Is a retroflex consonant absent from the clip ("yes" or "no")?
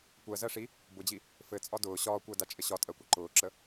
no